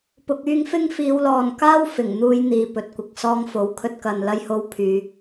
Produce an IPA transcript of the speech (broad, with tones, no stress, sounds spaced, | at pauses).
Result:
p ʊ˨ k̚ yː˧ ŋ f ɪ˥ ŋ f iː˨˧ w l ɔː˨ n k aː˥ w f ɪ˨˩ ŋ n̪ uː˧ j n̪ iː˨ p ɵ˨ t̚ kʷ ɪ˨ k̚ s ɔː˧ ŋ f o˨˥ w kʰ ɵ˧ t̚ k ɐ˨ n l ɐ˧ j h o˧ w pʰ yː˨